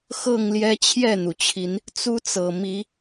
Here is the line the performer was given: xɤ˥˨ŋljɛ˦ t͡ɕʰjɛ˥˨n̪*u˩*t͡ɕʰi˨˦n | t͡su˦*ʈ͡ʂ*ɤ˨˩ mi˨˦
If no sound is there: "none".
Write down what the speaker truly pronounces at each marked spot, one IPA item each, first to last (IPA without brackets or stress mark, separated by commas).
u˩, t͡s